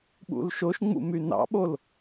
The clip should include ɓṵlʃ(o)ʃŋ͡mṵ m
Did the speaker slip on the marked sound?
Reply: no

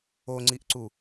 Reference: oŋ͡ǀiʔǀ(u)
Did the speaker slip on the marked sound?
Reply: no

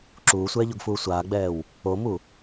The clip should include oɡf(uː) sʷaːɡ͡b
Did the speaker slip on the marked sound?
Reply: no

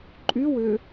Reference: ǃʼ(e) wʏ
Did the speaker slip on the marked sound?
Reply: yes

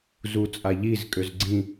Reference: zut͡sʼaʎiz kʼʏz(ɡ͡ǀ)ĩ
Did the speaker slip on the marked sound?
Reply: no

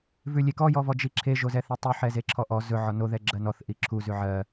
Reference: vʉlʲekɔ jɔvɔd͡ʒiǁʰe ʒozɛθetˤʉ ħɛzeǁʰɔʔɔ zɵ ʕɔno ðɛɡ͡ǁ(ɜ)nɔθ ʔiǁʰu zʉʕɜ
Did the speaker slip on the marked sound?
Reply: no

